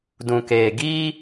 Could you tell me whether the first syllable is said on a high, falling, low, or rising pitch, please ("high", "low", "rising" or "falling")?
low